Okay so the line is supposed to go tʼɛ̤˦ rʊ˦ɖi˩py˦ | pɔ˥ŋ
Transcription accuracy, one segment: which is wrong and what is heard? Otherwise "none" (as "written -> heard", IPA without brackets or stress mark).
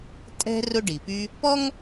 none